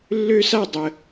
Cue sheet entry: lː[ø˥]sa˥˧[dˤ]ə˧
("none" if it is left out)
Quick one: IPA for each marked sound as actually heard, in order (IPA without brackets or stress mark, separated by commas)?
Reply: ø˥, dˤ